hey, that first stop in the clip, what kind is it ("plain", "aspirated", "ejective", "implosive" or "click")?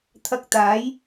aspirated